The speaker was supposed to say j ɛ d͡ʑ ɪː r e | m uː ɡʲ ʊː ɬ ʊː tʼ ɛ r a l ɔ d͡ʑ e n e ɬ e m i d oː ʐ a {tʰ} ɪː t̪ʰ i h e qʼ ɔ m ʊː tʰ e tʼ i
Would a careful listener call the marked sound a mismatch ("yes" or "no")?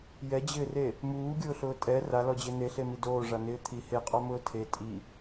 yes